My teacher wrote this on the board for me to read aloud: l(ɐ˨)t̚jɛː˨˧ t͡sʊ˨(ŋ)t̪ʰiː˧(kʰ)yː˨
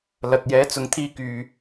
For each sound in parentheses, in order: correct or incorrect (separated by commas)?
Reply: correct, correct, incorrect